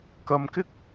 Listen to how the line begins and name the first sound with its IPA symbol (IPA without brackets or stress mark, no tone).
k